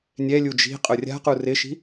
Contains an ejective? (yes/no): yes